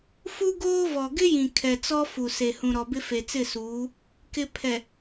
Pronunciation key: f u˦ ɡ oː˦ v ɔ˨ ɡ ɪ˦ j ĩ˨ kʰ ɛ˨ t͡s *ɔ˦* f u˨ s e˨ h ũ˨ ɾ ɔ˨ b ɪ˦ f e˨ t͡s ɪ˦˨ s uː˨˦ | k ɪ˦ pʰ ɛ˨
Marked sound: correct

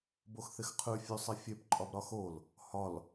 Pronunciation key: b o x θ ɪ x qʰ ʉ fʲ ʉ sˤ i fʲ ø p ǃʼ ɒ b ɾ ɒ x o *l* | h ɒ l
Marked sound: correct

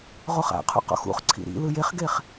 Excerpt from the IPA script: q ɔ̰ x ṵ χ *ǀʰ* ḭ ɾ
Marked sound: correct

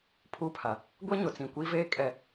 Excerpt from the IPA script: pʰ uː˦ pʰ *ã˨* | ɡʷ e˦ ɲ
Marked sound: incorrect: a˨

